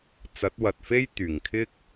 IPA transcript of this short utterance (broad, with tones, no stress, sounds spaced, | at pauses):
t͡s ɐ˨˥ t̚ w ɐ˨ t̚ f e˥ j t̪ yː˨˩ ŋ kʰ ɪ˥ k̚